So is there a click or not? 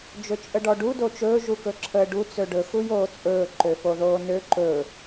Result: yes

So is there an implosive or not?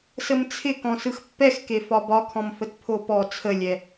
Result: no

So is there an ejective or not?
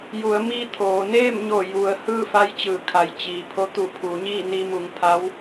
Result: no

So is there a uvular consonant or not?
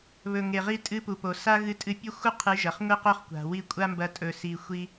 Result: yes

